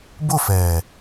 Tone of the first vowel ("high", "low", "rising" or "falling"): falling